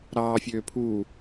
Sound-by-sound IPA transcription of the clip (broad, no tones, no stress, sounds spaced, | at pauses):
ɾ ɑː fʲ øː pʰ uː